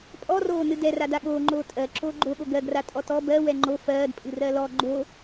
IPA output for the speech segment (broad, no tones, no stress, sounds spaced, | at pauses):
pʼ ɔ r oː n ɨ d ɛ r a d a ɠ oː ŋ͡ǃ oː tʼ ɜ ǁ oː ɡ͡ǃ o ɠ o ɡ ɜ ɡ r a tʼ ɔ t ɔ b ɜ w ɛ ŋ͡ǃ o f ɜː d pʼ ɨ r ɜ l ɔ ɡ͡ǃ o